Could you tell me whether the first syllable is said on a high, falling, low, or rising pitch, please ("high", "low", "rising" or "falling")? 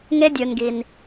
high